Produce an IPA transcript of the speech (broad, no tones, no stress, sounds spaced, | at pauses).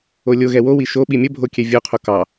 o lʲ o ɣ ɛ w o w i ʃ o ɓ i mʲ ə bʱ o kʲ ɛ vʲ o qʰ o k ɑ